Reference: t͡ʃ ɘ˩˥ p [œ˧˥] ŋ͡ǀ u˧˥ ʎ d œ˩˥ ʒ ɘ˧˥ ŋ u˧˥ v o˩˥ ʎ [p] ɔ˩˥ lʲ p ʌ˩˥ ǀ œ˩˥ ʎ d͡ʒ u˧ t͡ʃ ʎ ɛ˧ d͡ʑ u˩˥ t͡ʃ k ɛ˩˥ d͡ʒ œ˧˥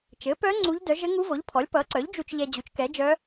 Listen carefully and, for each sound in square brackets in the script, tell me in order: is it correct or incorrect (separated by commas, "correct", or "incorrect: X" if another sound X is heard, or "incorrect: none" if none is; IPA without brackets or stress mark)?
correct, incorrect: pʰ